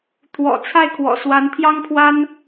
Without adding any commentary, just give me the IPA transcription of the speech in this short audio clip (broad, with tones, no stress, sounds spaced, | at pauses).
t̪ʰ w ɔ̰˨˩ t͡sʰ a˥˩ ɪ̯ kʰ w ɔ̰˨˩ s w a˧˥ n t̪ʰ j ɑ˥ ŋ pʰ w a˥ n